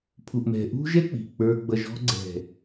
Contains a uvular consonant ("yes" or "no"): no